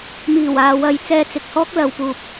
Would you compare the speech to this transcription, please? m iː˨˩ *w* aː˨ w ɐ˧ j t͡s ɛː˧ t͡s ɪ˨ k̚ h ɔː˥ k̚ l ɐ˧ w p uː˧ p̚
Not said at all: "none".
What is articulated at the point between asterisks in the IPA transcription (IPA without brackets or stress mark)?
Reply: w